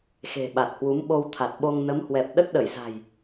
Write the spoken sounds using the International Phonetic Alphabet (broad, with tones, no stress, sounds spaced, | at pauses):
x e̤˨˩ ɓ a˨˩ t̚ h w u˨˦ m ɓ o˧ w t̪ʰ a˨˩ t̚ ɓ o˧ ŋ n ə˨˦ m h w ɛ˨˩ p̚ ɗ ə˦˥ t̚ ɗ ə˧˩ j z a̤˨˩ j